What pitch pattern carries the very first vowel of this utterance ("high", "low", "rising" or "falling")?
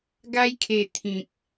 high